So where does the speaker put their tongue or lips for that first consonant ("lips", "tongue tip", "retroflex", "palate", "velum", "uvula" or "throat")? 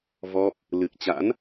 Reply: lips